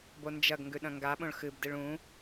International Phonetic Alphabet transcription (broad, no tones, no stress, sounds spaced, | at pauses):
b o n d͡ʒ ɐ ɡ ŋ ɡ ʉ ɗ ɐ̃ ŋ ɡ a ɓ õ ɭ x ɨ b d ɨ ɭ ũ